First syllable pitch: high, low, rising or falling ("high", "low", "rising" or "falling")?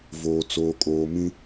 low